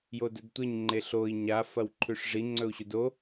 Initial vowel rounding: rounded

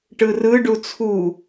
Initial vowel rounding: unrounded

